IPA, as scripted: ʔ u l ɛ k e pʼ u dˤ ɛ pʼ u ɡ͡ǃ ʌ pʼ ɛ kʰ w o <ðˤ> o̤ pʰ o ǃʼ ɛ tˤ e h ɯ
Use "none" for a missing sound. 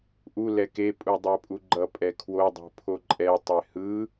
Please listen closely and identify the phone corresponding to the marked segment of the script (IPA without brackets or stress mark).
dˤ